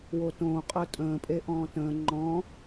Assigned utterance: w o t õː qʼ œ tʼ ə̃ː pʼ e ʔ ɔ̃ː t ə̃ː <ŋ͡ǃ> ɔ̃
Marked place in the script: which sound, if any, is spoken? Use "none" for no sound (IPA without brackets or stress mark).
ŋ͡ǃ